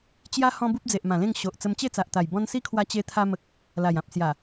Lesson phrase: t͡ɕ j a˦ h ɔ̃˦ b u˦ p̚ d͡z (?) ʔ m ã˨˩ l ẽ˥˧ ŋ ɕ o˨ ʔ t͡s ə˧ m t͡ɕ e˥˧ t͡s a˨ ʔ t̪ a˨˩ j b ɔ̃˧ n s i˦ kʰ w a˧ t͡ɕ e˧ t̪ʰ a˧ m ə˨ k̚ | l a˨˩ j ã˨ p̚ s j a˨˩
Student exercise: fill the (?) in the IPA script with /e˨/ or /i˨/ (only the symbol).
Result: e˨